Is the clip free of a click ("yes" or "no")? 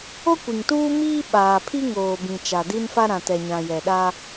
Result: yes